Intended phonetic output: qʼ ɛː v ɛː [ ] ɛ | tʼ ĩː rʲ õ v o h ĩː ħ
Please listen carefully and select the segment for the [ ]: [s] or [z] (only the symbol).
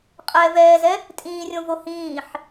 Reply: z